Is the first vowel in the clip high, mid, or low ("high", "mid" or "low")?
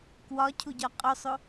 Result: low